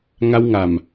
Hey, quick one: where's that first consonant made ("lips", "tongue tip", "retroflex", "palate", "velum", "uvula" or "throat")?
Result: velum